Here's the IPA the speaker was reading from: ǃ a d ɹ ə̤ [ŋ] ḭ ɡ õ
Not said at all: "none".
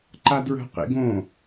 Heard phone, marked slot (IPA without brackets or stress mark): q